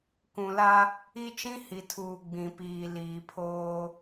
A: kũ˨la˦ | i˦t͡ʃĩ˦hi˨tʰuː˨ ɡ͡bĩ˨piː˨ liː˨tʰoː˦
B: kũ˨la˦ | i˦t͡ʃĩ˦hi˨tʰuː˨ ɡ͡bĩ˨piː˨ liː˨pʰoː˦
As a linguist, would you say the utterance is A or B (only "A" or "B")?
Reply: B